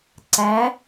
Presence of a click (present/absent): present